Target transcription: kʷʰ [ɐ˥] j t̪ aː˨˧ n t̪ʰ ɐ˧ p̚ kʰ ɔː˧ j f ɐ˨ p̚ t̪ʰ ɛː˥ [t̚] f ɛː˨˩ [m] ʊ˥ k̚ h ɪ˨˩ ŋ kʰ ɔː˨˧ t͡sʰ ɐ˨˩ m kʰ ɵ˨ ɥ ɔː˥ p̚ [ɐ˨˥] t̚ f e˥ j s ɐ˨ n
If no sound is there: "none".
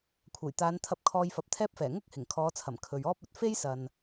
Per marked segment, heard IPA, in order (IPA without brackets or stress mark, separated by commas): ɐ˨˩, p̚, ŋ, ɐ˨